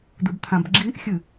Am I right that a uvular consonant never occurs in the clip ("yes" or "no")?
yes